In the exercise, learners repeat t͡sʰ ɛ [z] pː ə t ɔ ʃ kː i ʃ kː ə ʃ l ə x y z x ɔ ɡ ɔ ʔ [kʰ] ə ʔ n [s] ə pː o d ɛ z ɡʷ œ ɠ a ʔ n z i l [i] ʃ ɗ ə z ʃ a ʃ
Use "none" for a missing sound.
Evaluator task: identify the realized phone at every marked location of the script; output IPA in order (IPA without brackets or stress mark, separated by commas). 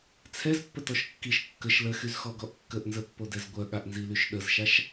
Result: z, kː, z, y